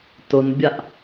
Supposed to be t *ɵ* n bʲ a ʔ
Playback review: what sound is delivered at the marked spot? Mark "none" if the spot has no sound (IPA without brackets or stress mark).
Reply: ʊ